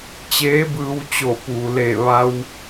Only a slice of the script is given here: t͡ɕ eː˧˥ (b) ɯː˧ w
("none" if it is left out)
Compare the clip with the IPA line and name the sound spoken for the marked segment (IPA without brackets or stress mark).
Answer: b